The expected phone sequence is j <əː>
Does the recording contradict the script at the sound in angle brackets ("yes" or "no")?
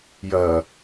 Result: yes